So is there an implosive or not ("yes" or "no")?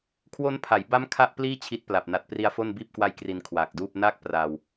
no